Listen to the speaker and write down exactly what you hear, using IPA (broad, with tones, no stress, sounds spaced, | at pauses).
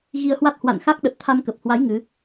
ɣ i˧ ə̯ h w a˦˥ t̚ h w a̰˧˨ n x a˦˥ k̚ ɗ ə˨˩ t̚ t̪ʰ a˧ m k ə˨˩ p̚ h w a˨˦ j ŋ ɨ˨˦